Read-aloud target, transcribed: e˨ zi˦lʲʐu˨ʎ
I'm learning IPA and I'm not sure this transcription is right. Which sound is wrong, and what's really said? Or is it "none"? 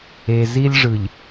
u˨ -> ɯ˨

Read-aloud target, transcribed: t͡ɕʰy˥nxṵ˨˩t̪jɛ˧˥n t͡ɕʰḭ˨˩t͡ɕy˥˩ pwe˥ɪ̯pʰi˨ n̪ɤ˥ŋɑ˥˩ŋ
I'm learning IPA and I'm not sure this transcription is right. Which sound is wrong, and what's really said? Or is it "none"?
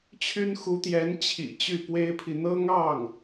ṵ˨˩ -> u˧˥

